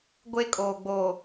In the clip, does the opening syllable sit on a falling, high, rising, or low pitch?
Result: high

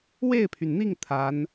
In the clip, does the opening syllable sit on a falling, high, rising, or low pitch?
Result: falling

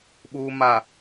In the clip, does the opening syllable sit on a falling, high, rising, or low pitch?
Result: low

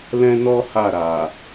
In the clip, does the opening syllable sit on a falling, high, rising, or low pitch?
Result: high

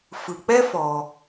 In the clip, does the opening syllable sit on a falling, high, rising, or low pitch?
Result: low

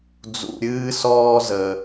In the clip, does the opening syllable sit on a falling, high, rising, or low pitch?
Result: low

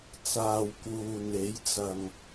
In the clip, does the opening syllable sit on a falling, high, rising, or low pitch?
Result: low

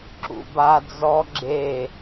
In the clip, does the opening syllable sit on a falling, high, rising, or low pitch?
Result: low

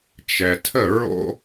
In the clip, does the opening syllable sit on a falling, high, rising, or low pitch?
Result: low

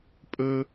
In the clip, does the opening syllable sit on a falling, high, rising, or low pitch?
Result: high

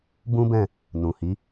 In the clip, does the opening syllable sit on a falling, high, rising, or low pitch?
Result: high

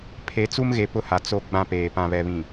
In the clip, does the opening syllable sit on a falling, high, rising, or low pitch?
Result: rising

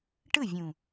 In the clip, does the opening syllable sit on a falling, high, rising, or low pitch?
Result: falling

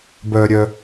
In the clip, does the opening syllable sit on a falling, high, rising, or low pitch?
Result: low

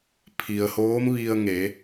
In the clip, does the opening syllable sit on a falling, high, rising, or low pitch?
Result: low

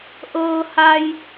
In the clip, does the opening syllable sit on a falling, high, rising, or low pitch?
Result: low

